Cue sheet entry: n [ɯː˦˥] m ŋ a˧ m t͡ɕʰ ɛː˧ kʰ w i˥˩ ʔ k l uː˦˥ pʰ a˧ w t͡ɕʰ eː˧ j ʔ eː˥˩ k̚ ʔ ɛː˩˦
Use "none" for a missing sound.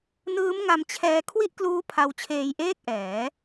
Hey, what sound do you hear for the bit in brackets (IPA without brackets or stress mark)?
ɯː˦˥